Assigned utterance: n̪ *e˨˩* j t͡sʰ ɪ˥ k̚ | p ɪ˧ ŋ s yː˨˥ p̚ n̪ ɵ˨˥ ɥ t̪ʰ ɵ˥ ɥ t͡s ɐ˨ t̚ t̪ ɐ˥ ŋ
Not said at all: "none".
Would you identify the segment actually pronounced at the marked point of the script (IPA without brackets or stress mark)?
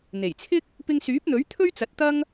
e˨˩